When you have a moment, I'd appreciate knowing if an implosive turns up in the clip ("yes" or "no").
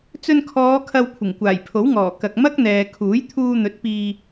no